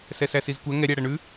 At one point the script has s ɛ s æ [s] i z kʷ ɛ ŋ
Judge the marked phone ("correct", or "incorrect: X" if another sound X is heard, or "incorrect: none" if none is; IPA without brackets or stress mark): correct